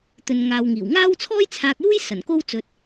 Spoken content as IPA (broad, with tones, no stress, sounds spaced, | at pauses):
t̪ ɵ˨ n ŋ aː˨ w ŋ iː˨˩ w ŋ aː˥ w t͡sʰ ɔː˥ j t͡sʰ aː˧ k̚ j uː˥ j s ɐ˨˩ n k o˥ w t͡s ɵ˧ t̚